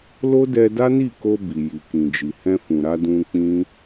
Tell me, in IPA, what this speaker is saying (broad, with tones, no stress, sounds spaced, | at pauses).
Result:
l o˦ d ɛ˧ d a˦ n i˦˨ k o˧ b i˨ j i˨ k ĩ˨ d͡ʒ i˨ h ɛ̃˧ f ũ˨ ɾ a˧ d ũ˧ k͡p ĩ˦